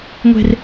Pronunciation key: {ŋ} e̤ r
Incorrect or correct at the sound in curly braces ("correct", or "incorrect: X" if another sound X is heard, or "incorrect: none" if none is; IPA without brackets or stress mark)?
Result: incorrect: ŋʷ